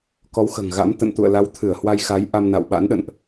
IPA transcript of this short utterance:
k ɔ˨˦ w x ə̤ː˨˩ ŋ ɣ a̰˧˥ m t̪ ə̰˧˨ n t̪ ṵ˧˨ ə̯ l a˨˦ w t̪ʰ ɨ˧˩ ə̯ h w a˧ j x a˨˦ j ʔ a˧ m n a̰˧˨ w ɓ a̰˧˥ n ɗ ə̰˧˨ n ʔ

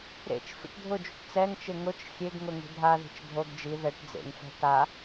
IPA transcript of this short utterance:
ɾ ḛ t͡ʃ f ḭ ʈ dʱ ʊ d͡ʒ u ʈ t͡s ɛ ŋ t͡ʃ ɪ ŋ ʊ t͡ʃ xʲ e ɡ ŋ ʊ ŋ i̤ dʱ a ð i̤ t͡ʃ dʱ o ɡ d͡ʒ i ð ɛ ʈ d͡z ḛ ŋ f ɛ̤ t a

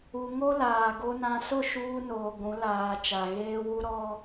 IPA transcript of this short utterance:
u˨ ŋ o˦ l aː˨ ɡ o˨ n ã˨ s ʊ˦˨ ʃ uː˦ n oː˨ ɡʷ ũ˨˦ l aː˨ t͡ʃ a˨ ɣ eː˦ w u˦ ɾ ɔ˦

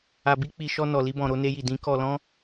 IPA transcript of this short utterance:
a˨ b i˧ k͡p i˨ ʃ ɔ˧ n ɔ˨ l i˧ b ɔ̃˨ ɾ o˧ n e˧ j i˨ d ĩ˨˦ k ɔ˧ l ɔ̃˦

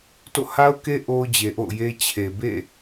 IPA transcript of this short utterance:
t o̰˦˨ h a˦ ʊ̯ k e˦ ʔ o˦ ʊ̯ d͡ʑ e˨ ʔ o̰˦˨ ʊ̯ j e˦ t͡ɕʰ e˨ b ḛ˦˨

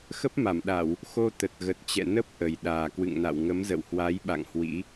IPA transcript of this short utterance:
x ə˦˥ p̚ m a˧˩ m ɗ a˧˩˨ w | x o˧ t̪ ə˨˩ t̚ ɣ ə˨˩ t̚ t͡ɕ ɛ̰˧˨ n ə˦˥ p̚ ʔ ə˨˩ j ɗ aː˨˩ k w ɨ̰˧˨ ŋ n a̰˧˨ w ŋ ə˨˦ m z ə̰˧˨ w h w a˨˦ j ɓ a̰˧˨ ŋ h w ḭ˧˥

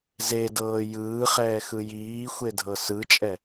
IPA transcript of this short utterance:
z e d ɤː j ɯː χ ɛː x ɯ j iː xʷ e dʱ ɤ s ɯ t͡ʃʼ ɛ

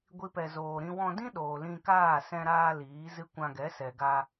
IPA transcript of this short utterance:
ɡʷ i˦ p ɛ˧ z oː˧ ɾ ĩ˦ w ɔ̃˧ d ĩ˦ ɗ oː˨ l ĩ˧ k aː˦˨ s ɛ̃˧ ɾ aː˧ l iː˨˦ z ɨ˦ kʷ ã˧ ɡ ɛ˨˦ s ɛ˨ ɡ a˧

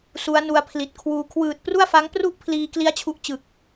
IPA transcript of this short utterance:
s u˦˥ a̯ n u˧ a̯ pʰ l i˨˩ t̚ kʰ w uː˧ kʰ w ɯː˨˩ t̚ p r u˥˩ a̯ f a˦˥ ŋ p r u˥˩ ʔ pʰ l iː˧ k l i˦˥ a̯ t͡ɕʰ u˥˩ ʔ t͡ɕ ɯ˨˩ k̚

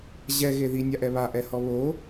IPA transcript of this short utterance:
ʑ ɛ ɣ e ð i nʲ a ʔ ɛ β a ʔ ɛ h ɔ β o

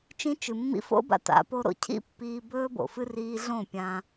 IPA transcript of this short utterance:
t͡ʃ ĩ˧ t͡ʃ ɨ˨ mː ḭ˧ f o̰˦ b a̰˧ t a̰˨˦ p o˧ ɾ o̰˧ cʰ ḭ˦ pː iː˧ b ɵː˧ b o̰˨ f ɨ˧ r iː˧ ɮ õ˦˨ pʲ ã˧

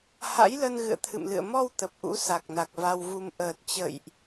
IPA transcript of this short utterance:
h a̰˧˥ j l ə˧ n ɣ ɨ̰˧˨ ə̯ t̪ʰ ɨ̰˧˨ m l ɨ̰˧˨ ə̯ m ɔ˧ w t̪ ə˨˩ p̚ ʔ ṵ˧˥ s a˨˩ k̚ n a˨˩ k̚ v a˧ w v u˧ m ʔ əː˨˩ t̚ t͡ɕ ə̰˧˨ j ʔ

